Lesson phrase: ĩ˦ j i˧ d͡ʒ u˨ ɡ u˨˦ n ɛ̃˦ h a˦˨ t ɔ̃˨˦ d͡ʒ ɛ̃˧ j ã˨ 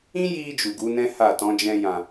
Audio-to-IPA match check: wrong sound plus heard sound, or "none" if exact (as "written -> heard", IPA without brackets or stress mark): none